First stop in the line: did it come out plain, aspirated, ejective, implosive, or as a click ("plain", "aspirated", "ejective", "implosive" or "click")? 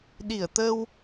implosive